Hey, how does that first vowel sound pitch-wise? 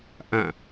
falling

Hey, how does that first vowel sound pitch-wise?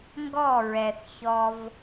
falling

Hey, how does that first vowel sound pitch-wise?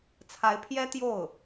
rising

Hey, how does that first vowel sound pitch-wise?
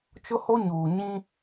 high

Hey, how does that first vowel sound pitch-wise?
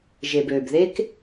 low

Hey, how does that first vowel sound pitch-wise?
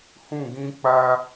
falling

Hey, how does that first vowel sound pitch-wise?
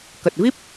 low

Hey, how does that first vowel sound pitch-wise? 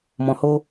low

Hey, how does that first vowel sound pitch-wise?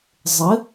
rising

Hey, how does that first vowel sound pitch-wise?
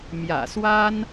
low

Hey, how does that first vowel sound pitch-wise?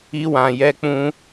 high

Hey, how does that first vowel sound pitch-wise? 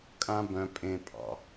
high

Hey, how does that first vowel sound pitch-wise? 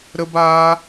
high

